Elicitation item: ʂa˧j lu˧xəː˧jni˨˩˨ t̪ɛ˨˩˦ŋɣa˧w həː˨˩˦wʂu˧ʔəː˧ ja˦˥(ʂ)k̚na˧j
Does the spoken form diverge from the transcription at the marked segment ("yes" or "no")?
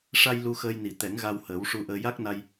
yes